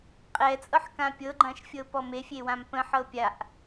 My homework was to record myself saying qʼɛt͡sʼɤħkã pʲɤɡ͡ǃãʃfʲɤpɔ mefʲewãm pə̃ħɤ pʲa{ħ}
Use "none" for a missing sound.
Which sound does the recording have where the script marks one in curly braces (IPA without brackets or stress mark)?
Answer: ʔ